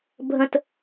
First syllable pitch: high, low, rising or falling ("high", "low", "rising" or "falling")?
high